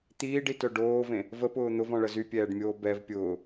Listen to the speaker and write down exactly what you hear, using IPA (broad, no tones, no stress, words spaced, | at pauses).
t̪iːɖitœ ɖoːvẽ | vəpʊː n̪ʊvɔ̃ɭə zypʲɛːɖmʲoː bɛv pʲʊː